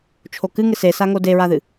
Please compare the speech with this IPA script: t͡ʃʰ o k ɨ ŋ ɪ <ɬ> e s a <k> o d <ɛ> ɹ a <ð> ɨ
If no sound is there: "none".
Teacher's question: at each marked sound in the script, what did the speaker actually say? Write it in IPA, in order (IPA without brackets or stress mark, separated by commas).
s, ŋ, e, ð